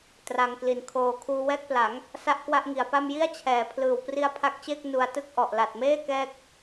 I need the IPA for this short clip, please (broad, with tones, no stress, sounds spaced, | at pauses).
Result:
t r a˧ ŋ k l i˨˩ n kʰ oː˧ kʰ uː˧ w ɛː˥˩ k̚ p l a˩˦ ŋ | s a˥˩ ʔ k w a˥˩ ʔ ŋ i˩˦ a̯ p a˥˩ m j i˥˩ a̯ t͡ɕʰ ɛː˩˦ pʰ l ɯː˨˩ w p r i˦˥ a̯ pʰ a˦˥ k̚ t͡ɕ eː˥˩ k̚ n u˧ a̯ t ɯ˥˩ k̚ ʔ ɔ˨˩ ʔ l a˨˩ t̚ m eː˥˩ k ɛː˦˥ k̚